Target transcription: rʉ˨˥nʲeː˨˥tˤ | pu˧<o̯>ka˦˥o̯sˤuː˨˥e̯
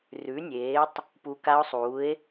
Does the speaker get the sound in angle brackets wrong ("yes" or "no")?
yes